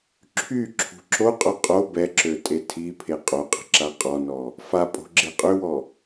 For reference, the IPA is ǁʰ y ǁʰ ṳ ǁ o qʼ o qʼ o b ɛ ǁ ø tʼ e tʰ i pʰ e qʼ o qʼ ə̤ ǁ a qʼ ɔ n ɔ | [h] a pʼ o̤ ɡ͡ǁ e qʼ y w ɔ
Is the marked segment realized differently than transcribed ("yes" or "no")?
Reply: yes